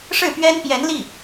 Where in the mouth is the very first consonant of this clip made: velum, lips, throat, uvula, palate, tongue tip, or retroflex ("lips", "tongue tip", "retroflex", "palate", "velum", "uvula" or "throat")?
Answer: retroflex